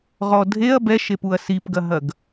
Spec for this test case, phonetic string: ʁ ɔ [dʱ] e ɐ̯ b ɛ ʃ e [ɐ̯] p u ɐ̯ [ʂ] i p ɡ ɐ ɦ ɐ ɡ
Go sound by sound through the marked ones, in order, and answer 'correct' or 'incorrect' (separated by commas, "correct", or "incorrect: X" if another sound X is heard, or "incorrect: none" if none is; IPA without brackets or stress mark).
correct, incorrect: none, incorrect: s